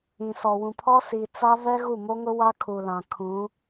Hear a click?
no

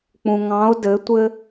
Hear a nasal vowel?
yes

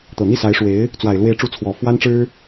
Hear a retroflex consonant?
yes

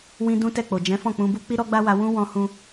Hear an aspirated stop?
no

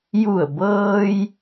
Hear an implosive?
no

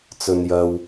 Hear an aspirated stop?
no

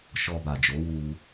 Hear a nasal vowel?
no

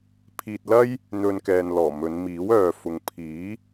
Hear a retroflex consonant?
no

